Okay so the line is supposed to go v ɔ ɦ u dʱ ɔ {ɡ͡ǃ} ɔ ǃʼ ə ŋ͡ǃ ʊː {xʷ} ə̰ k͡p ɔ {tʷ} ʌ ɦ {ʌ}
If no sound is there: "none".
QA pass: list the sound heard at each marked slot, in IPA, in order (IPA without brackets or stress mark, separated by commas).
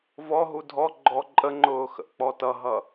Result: ɡ͡ǃ, x, t, ʌ